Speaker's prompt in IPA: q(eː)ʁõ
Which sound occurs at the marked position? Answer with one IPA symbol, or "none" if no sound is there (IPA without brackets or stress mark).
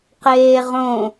eː